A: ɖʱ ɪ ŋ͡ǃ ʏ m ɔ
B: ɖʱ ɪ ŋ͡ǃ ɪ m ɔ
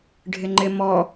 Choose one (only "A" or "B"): B